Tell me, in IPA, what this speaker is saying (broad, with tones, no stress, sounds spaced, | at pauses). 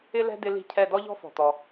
ɪ˦ l ɛ̤˦ d ɪ˦ l i̤˦˨ cʰ ɛ˦˨ d ɔ˦ ʎ ɔ̤˦ f ɔ̤˩ t̪ ɔ˩